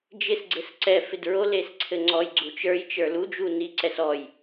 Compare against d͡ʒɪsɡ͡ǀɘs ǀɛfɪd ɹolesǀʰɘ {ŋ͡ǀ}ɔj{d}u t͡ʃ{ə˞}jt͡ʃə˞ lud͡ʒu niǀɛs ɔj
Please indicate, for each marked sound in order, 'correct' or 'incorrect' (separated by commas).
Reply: correct, incorrect, correct